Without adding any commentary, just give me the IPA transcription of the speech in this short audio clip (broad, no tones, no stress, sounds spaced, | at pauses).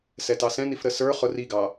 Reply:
s ɛ t ɑ s ɛ̃ n i f ɾ ə s ə˞ χ ʊ r i ɡ ɑ